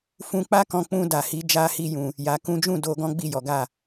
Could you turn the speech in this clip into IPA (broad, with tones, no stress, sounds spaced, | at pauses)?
f ũ˧ k͡p a˦ k ɔ̃˧ k͡p ũ˧ d a˨ h i˨˦ d͡ʒ a˦ h i˦ j ũ˧ | j a˧ k ũ˦ d͡ʒ ũ˦˨ d o˧ ɡ ɔ̃˦ ɡ͡b i˦˨ j ɔ˨˦ ɡ a˦˨